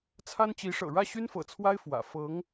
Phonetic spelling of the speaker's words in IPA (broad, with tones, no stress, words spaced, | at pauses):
t͡sʰa˥nt͡ɕi˧˥ʂɤ̰˨˩ ɻä˥˩ɕy˥nfɤ̰˨˩t͡sʰwa˥ɪ̯ fwä̰˨˩ fɤ˧˥ŋ